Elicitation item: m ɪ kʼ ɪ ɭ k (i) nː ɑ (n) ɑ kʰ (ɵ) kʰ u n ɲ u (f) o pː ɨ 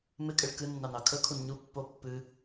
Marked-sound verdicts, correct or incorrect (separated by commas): incorrect, correct, correct, incorrect